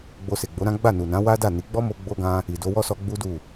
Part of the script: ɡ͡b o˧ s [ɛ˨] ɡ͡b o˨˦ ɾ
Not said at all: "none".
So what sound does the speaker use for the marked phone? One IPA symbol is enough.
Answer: e˨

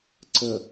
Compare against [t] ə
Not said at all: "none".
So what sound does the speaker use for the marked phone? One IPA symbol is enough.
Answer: ǀ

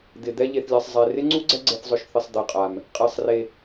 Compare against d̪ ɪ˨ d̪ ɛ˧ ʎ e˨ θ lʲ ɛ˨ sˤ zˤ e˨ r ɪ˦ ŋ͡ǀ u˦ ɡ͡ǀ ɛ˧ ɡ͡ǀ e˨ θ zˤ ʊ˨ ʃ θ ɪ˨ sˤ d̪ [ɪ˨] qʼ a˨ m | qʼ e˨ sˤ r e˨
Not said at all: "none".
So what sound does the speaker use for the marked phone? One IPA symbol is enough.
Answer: ɛ˨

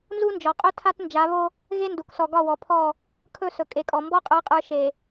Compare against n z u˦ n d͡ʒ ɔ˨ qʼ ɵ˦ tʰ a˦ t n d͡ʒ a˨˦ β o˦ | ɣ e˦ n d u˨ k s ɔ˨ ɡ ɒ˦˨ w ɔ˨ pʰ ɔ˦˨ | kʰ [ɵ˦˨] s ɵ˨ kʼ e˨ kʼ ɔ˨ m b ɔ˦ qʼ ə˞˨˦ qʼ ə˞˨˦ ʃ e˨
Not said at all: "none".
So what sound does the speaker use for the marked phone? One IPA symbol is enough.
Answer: ɵ˦˨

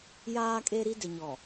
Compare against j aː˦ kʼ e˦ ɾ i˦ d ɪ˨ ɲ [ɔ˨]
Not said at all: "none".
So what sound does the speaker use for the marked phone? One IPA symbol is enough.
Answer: ɔ˨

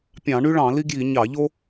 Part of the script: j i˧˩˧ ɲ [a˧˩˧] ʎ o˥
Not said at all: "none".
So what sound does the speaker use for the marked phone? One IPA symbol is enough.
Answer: ɑ˧˩˧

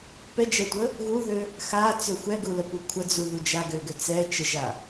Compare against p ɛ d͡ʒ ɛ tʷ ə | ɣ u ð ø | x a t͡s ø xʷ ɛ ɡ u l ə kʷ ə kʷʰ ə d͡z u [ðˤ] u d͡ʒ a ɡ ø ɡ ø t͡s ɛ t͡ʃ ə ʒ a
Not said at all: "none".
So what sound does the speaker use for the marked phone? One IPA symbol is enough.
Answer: ð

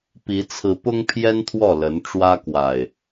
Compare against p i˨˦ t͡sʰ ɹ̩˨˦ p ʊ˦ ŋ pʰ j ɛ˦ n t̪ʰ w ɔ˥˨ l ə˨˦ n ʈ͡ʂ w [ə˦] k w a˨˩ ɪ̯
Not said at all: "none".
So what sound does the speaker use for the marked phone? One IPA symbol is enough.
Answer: ä˦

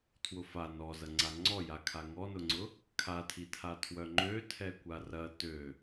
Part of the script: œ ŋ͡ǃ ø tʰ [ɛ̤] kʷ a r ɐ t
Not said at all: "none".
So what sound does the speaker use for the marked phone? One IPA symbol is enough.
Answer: ɛ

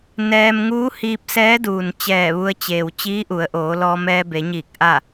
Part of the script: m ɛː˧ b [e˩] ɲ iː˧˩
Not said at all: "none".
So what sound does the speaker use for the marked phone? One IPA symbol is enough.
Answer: e˩˧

